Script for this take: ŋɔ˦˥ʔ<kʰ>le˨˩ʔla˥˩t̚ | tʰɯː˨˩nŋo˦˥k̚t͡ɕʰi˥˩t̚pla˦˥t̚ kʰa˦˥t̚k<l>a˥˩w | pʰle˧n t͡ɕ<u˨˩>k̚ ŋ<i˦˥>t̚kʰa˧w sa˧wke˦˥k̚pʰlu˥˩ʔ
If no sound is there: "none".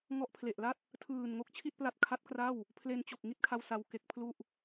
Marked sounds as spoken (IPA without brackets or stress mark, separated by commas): pʰ, r, o˨˩, i˥˩